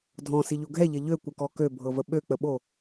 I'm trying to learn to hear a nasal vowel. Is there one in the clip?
yes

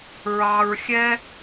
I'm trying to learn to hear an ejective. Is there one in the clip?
no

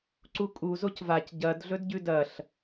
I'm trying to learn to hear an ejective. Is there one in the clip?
yes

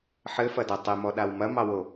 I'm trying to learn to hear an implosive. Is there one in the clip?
yes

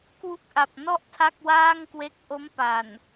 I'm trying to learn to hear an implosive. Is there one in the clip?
no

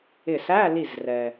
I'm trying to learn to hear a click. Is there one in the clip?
no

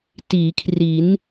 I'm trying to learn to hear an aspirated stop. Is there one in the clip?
yes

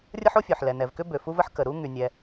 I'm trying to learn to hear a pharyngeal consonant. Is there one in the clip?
yes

